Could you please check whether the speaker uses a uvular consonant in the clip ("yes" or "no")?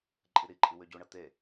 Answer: no